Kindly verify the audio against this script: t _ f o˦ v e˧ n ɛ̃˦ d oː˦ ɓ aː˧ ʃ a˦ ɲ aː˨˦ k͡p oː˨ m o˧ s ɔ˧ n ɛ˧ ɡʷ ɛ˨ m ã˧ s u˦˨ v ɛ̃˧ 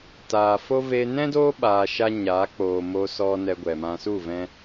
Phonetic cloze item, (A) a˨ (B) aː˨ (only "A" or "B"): B